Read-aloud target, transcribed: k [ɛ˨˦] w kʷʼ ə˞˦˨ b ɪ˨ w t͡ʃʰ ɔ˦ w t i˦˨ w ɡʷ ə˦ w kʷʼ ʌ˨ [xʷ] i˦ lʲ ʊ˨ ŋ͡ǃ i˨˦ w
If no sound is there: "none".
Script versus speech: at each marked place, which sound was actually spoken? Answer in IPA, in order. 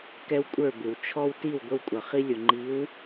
ɛ˦, χ

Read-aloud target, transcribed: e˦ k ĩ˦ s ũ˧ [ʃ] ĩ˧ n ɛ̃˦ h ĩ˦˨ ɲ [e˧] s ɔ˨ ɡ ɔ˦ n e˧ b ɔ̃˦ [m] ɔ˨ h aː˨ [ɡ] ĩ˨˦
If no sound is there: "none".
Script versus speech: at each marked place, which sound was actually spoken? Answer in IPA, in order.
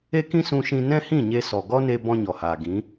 ʃ, e˧, ɲ, ɡ

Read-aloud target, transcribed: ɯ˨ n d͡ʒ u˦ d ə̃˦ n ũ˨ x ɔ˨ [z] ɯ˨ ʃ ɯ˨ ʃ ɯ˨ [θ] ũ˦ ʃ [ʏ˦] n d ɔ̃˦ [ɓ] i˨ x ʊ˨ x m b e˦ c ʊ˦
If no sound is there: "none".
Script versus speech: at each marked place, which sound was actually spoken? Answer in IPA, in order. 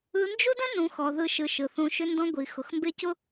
ð, θ, ʏ˦, ɡʷ

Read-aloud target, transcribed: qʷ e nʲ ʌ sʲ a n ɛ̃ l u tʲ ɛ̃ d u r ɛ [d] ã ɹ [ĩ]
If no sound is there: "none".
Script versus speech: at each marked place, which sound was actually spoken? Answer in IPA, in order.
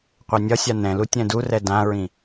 d, ĩ

